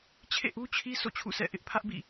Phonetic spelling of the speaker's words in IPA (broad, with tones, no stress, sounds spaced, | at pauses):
t͡ɕʰ ḛ˦˨ ʔ u˦ t͡ɕʰ i˦ s o̰˦˨ t͡ɕʰ ṵ˦˨ s ɛ̰˦˨ ʔ ɪ˦ ʔ pʰ ä˦ ʔ b ḭ˦˨